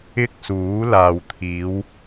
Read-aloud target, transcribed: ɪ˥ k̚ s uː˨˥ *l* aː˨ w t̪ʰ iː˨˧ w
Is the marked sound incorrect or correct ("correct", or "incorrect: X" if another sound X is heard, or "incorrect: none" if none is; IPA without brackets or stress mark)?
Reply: correct